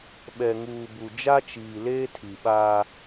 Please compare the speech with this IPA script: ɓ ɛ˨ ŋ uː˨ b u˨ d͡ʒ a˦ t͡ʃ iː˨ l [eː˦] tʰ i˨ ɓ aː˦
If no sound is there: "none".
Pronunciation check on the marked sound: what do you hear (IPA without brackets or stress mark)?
eː˦